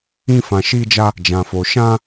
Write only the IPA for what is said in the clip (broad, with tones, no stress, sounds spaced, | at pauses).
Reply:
ĩ˧ f ã˨ ʃ i˧ d͡ʒ a˧ | d͡ʒ ã˨ f o˨ ʃ ã˧